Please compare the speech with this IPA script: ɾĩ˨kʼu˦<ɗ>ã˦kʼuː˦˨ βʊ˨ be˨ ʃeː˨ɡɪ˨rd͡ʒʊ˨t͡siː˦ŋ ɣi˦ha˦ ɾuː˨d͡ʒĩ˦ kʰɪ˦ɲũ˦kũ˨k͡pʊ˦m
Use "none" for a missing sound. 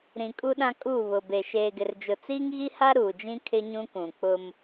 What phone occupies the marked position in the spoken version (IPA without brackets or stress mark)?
ɗ